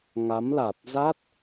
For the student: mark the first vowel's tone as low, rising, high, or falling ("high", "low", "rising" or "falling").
rising